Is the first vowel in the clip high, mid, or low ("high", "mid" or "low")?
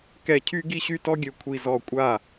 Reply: mid